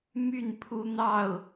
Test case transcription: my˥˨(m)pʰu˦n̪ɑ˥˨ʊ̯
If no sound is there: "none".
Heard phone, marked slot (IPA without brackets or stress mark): n